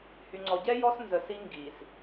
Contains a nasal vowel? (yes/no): no